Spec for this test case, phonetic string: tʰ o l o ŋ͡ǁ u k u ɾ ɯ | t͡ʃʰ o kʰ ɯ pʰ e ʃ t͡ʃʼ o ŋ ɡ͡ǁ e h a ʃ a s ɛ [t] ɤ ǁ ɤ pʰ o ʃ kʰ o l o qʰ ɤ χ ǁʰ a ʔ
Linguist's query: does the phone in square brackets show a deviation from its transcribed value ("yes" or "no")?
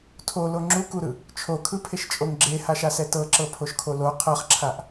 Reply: no